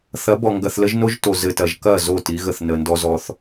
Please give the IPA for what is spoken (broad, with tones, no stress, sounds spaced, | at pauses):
θ ɐ˨˦ b ɔ˨ ŋ ɡ ɐ˨ θ l ə˦ ʒ n o˦ ʒ t o˨ z ɘ˨ t ɐ˨ ʒ k ɐ˦˨ z o˦˨ t i˨˦ ɣ ə˨ θ n ə˨ n d ɔ˦ z ɔ˦ θ